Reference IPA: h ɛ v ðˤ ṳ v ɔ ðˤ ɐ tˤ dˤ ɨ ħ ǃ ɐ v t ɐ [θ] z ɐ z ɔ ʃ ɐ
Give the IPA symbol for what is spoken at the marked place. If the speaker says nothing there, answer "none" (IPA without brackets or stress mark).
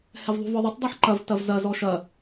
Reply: v